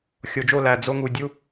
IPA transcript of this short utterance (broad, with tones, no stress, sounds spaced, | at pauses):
xʲ o˨ d͡ʒ o˦˨ l æ˨ d͡z o˧ ŋ u˨ dʲ u˦